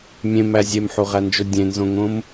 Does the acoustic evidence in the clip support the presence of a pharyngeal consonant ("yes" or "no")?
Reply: yes